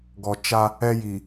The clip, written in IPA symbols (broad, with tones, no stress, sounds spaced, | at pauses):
ɡ ɔ˨ t͡ʃ a˦ | ɛ˦ j i˨